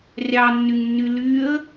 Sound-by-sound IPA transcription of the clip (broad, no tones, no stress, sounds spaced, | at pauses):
rʲ ɑ nː y ŋ nː y l y ə̯